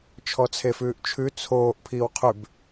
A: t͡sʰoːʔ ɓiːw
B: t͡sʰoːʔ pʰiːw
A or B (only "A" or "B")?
B